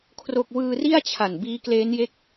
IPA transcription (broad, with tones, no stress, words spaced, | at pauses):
kʰro˥˩k̚ wɯː˧ri˥˩a̯t͡ɕʰa˨˩n biː˦˥kleː˦˥nje˦˥k̚